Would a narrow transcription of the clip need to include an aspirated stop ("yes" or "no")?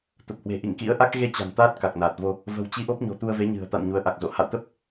no